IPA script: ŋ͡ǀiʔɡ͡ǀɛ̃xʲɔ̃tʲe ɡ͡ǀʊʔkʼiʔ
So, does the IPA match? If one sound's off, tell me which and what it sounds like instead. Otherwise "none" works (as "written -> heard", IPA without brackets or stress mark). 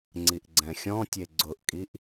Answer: none